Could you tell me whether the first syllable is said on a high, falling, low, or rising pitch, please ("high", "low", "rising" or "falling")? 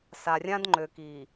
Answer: low